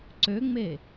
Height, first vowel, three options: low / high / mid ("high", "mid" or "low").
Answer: mid